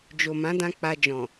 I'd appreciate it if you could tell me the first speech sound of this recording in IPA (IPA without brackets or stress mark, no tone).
d͡ʒ